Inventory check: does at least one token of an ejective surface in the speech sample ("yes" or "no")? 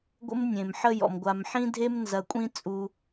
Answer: yes